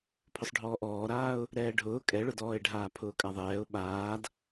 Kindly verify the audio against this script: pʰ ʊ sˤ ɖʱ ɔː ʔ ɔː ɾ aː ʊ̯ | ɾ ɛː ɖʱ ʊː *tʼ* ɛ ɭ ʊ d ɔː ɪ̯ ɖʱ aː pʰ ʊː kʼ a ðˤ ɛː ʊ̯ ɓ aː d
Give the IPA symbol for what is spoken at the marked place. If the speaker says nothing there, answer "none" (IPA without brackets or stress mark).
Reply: kʼ